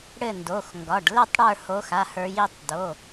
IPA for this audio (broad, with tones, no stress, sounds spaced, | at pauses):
ɽ ɘ˦˨ n d o˩˧˩ x ŋ ɡ ɒ˩˧˩ ɖ l ɘ˦˨ tˤ ɽ ə˞˦˨ h o˨˦ x a˩˧˩ h ə˞˨˦ j i˩˧˩ tˤ d o˩˧˩